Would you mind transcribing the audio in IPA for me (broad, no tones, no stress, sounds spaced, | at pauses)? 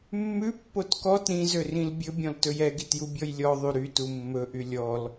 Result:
mː ʉ pː o t k ɔ t ɾ ĩ z ø r ĩ l bʲ ɵ bʲ ɔ̃ l t ɵ j ɛ ɡ i t j u bʲ ɔ j lʲ ɔ ðˤ y ɾ y t u mː ɵ ʔ y lʲ ɔ l